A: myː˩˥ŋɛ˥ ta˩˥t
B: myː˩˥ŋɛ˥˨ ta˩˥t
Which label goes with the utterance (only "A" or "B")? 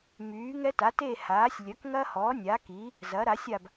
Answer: A